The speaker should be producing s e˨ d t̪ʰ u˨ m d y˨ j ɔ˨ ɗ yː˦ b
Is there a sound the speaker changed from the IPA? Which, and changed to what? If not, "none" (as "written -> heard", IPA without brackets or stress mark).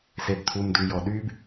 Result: none